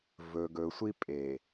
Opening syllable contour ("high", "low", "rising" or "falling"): low